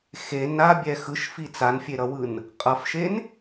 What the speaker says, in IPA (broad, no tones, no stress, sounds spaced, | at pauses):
x e n a bʲ ɛ x ɯ ʃ f i t͡s a n fʲ e ɾ ʌ w ɯ n | qʼ ʌ f ʃ e n